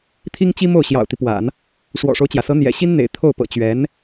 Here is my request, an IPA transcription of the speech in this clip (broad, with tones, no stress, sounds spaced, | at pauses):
t̪ʰ i˥ ŋ t͡ɕ i˥ m o˥˩ ʊ̯ ɕ j ɑ̰˨˩ ʊ̯ t̪ i˦ p w a̰˨˩˦ n | ʂ w ɔ̰˨˩ ʂ o˦ ʊ̯ t͡ɕ j ä˩ s ɤ˧˥ n̪ j ɛ̰˨˩ ɕ i˥ n n̪ ḛ˨˩ ɪ̯ t̪ʰ o˥˩ ʊ̯ p ɤ̰˨˩ t͡ɕ ɥ ɛ˧˥ n